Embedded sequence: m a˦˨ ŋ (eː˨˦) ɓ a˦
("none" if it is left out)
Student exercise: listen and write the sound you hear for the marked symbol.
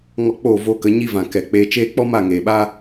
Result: eː˨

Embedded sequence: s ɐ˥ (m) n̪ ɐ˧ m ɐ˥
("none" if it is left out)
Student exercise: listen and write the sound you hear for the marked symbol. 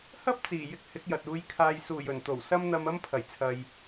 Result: m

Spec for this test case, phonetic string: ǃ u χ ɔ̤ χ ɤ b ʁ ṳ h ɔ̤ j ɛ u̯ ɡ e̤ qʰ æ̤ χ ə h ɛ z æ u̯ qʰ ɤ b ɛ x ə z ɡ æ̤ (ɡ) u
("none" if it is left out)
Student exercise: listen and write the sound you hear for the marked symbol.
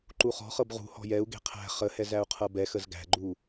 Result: ɡ͡ǃ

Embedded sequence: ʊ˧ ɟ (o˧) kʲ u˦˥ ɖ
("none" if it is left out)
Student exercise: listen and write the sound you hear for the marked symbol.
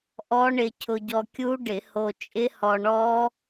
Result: ɔ˧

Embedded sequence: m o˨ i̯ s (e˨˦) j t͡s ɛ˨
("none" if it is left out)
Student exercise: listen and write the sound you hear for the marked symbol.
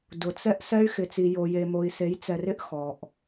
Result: e˨˦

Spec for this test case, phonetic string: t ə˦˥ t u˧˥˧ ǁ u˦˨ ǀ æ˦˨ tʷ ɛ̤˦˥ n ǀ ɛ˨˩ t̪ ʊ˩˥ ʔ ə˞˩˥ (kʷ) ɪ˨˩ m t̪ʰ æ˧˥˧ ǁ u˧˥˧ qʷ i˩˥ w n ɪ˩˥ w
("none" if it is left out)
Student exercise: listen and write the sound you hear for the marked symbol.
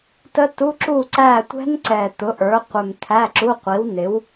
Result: qʷ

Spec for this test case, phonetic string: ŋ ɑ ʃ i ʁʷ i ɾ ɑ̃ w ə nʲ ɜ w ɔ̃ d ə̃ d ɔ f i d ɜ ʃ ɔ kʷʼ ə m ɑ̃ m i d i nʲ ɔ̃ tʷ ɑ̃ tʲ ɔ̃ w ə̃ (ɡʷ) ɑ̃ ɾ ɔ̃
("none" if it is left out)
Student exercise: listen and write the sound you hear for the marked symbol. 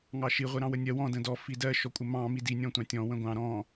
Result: ɡʷ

